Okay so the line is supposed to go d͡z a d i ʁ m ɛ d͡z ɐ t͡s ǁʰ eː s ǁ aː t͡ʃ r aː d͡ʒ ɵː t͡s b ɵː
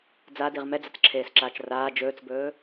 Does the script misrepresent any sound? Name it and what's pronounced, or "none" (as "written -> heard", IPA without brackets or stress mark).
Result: none